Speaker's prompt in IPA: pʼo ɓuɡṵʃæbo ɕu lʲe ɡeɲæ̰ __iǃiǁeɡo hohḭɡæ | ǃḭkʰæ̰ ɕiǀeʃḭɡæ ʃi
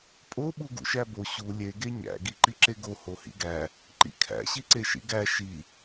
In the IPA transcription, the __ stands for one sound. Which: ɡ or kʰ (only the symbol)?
ɡ